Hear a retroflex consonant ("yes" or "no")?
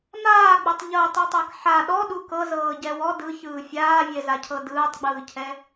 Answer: no